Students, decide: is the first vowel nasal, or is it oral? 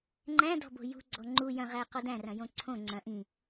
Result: nasal